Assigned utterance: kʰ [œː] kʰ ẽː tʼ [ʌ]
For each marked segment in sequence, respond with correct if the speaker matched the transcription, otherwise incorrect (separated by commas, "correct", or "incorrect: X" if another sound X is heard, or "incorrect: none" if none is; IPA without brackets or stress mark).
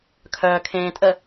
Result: correct, incorrect: ə